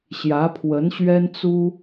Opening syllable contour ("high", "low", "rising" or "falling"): rising